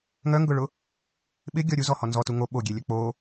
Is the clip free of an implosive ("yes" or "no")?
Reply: no